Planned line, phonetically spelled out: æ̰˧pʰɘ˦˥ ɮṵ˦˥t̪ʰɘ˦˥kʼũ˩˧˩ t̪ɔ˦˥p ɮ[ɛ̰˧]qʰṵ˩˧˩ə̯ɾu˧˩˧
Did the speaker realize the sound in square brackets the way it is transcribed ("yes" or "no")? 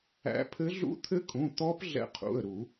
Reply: yes